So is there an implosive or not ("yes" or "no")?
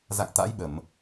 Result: yes